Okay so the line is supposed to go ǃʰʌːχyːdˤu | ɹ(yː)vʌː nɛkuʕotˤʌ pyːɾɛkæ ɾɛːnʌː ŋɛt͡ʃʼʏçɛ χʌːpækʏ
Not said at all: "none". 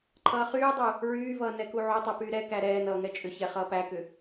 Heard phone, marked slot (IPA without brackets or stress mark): yː